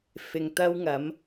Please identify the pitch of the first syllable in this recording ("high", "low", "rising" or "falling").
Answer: low